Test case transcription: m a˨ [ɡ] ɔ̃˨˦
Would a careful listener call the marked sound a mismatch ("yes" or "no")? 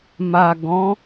no